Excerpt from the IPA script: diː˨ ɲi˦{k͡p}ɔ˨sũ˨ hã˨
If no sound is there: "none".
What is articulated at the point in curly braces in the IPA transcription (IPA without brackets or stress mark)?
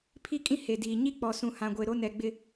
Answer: k͡p